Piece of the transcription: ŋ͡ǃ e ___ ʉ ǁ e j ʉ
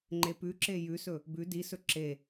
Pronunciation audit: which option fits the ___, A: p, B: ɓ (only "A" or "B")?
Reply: A